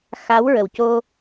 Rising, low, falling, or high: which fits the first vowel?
rising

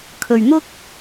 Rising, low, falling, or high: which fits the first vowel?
low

